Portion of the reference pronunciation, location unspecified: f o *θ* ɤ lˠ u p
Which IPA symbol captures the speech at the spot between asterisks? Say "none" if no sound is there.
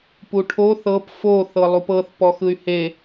θ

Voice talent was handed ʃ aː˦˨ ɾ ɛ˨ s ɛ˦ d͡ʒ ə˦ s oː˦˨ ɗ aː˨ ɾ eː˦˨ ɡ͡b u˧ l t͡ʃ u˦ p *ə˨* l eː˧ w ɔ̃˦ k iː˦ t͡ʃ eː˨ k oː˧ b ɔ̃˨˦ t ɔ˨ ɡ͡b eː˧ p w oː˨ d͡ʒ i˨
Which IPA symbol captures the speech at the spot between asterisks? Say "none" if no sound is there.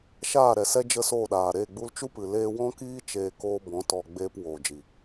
ɨ˨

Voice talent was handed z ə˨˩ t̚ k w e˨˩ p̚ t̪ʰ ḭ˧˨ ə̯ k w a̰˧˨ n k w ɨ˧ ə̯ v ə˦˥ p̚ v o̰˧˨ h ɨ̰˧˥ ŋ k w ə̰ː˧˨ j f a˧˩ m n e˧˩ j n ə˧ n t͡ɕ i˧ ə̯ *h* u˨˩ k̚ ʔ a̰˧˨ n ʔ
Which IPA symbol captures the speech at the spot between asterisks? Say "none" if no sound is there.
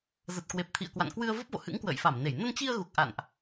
ɣ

